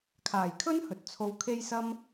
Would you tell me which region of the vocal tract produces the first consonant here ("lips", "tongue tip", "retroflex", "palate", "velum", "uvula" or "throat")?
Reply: velum